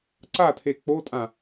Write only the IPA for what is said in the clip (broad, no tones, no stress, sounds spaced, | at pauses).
ǀ a tʰ e k͡p o tʼ ã